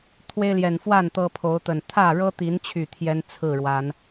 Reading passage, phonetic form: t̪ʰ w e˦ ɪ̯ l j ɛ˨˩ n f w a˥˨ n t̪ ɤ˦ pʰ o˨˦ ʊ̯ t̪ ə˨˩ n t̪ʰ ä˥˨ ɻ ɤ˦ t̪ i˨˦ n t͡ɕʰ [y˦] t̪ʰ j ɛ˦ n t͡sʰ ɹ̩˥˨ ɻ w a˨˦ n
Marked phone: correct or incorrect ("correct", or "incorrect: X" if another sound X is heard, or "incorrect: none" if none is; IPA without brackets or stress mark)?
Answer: incorrect: y˨˩